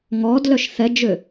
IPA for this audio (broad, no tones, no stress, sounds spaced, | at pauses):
ŋ ɔ d l œ ʃ θ ɛ d͡ʒ ø